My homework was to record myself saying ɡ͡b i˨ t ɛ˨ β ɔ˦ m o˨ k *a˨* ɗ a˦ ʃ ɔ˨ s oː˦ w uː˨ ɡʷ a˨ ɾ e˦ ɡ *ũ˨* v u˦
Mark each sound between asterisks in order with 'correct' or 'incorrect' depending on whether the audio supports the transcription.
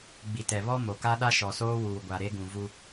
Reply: incorrect: a˦, correct

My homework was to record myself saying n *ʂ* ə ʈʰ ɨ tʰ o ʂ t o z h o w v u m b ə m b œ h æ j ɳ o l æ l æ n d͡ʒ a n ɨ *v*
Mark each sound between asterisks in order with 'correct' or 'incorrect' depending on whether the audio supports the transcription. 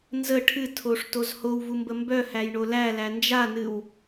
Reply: incorrect: z, incorrect: w

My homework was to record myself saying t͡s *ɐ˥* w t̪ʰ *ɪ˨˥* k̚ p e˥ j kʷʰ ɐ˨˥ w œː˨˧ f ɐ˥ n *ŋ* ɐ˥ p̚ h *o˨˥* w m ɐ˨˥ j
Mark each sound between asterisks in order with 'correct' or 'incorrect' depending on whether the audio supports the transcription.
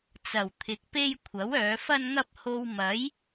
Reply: incorrect: ɐ˨˩, correct, correct, incorrect: o˧

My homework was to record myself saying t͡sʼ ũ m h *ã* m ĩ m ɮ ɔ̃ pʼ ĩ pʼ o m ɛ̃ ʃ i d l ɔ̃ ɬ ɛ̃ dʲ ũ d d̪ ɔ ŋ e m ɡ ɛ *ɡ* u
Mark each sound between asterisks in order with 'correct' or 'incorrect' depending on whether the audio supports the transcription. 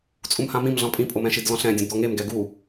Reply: correct, correct

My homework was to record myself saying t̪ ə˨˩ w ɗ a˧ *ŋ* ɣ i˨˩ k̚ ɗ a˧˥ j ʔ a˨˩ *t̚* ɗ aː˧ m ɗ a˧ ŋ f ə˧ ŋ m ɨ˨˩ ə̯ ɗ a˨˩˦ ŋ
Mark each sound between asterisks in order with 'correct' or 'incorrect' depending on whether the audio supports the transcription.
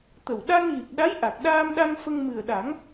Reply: correct, incorrect: k̚

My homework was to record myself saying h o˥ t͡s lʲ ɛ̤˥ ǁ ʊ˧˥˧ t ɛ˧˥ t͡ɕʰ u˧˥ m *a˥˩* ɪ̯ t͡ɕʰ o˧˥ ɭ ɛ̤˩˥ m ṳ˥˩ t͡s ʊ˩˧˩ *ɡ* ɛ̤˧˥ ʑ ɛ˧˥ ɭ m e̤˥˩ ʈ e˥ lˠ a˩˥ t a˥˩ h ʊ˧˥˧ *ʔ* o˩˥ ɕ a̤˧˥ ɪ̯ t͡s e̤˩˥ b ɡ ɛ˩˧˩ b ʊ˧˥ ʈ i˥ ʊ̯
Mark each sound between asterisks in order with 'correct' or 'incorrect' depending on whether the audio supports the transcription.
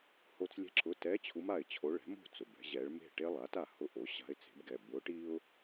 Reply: correct, incorrect: b, correct

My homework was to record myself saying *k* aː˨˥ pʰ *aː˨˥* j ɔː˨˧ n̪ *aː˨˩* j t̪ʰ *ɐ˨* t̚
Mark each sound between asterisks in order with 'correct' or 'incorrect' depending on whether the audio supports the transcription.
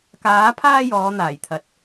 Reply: correct, incorrect: aː˥, correct, correct

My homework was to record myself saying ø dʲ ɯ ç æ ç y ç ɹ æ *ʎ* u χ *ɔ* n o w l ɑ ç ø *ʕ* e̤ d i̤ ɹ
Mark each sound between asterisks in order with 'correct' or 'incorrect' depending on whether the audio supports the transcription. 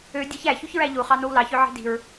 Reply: correct, incorrect: ɑ, correct

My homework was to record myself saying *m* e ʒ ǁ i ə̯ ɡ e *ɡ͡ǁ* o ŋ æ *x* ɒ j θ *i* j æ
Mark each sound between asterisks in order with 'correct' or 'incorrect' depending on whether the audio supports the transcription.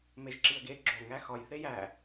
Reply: correct, correct, correct, incorrect: e

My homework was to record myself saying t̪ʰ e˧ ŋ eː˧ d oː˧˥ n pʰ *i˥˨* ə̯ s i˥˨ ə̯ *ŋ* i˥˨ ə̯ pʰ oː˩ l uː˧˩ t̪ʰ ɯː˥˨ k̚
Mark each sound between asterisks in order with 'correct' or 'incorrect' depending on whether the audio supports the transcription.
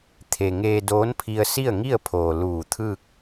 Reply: incorrect: i˧, correct

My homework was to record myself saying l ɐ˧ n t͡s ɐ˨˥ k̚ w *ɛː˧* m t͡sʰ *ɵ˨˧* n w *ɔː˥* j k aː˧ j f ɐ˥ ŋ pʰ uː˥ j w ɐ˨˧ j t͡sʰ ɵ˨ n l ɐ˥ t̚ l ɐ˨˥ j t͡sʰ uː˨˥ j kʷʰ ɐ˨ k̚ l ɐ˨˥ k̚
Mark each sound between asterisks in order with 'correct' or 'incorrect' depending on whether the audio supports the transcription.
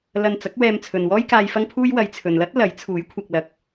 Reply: correct, incorrect: ɵ˨, correct

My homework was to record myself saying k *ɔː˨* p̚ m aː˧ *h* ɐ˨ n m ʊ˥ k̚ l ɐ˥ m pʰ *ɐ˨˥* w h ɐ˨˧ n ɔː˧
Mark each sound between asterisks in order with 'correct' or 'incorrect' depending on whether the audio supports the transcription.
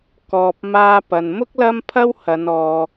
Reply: correct, incorrect: p, incorrect: ɐ˥

